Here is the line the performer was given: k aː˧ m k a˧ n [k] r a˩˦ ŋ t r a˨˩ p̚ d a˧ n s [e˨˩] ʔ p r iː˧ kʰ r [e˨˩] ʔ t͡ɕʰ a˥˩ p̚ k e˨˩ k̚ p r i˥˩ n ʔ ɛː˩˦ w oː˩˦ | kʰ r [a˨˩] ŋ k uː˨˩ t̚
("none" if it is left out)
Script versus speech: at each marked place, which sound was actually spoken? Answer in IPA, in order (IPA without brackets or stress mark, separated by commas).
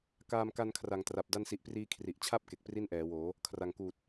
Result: kʰ, i˨˩, i˨˩, a˨˩